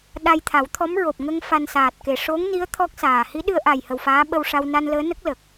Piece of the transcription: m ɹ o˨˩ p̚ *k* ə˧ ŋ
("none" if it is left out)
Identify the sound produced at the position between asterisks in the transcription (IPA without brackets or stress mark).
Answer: ŋ